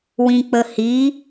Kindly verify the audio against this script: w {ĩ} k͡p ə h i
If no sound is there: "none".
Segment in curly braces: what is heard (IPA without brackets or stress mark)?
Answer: ĩ